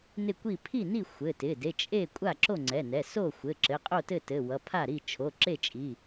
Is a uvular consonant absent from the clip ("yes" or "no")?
no